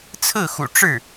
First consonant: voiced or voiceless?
voiceless